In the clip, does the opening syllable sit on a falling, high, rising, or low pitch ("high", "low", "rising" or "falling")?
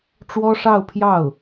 high